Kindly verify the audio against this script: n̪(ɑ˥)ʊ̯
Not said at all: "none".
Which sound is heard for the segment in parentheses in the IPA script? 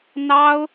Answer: ɑ˥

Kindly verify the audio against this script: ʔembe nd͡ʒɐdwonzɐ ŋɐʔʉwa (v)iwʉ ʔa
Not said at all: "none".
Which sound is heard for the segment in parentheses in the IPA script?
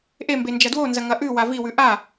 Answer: v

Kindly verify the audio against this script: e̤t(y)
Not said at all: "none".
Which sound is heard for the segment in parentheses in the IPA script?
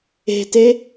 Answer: e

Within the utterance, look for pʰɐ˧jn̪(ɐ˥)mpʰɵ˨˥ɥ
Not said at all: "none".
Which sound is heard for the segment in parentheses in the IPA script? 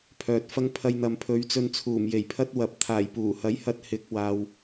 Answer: ɐ˨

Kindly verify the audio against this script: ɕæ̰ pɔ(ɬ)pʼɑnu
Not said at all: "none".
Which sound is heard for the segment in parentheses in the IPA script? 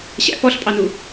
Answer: ɬ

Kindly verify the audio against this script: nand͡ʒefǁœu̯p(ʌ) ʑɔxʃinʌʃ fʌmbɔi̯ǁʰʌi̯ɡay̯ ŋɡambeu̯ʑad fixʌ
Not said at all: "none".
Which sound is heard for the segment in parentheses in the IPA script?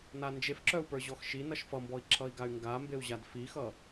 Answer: ə˞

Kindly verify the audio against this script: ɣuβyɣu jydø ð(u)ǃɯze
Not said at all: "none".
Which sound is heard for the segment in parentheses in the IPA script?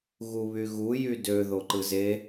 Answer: o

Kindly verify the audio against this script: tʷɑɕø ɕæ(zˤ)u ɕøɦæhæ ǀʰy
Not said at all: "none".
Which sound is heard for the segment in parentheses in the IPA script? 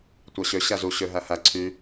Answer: z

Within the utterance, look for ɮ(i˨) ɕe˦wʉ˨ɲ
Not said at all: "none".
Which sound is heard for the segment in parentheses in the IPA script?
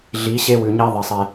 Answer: i˨˦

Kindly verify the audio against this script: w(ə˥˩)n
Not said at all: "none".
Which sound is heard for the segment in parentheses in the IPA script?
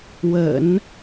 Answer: ə̰˨˩˦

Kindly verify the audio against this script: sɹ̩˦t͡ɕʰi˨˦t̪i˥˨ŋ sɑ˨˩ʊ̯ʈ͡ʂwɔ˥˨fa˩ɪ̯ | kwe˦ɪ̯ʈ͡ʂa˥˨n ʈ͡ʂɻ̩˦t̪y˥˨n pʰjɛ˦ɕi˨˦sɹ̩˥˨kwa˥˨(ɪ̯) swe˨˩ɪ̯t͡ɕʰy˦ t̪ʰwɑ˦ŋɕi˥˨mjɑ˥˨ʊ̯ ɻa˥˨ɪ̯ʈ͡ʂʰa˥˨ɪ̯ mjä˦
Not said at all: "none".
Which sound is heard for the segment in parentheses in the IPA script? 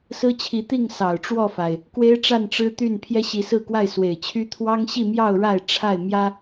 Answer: ɪ̯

